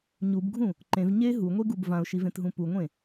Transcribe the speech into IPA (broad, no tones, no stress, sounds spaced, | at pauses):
ɲ u b ɡʱ ũ | ǃ ẽ v ɲ e ɦ u ŋʷ e ɡ u b v ã ʊ̯ ʃ i v ẽ t ɦ ũ p u ŋʷ ẽ